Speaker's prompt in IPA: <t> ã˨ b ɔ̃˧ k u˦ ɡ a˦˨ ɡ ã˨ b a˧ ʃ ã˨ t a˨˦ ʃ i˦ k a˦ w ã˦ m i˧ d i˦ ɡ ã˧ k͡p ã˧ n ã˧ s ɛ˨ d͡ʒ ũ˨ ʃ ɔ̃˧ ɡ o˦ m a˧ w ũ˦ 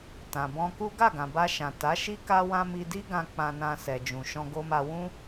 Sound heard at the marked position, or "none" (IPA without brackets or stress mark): t